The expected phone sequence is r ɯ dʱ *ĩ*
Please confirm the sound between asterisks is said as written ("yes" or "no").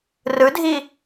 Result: no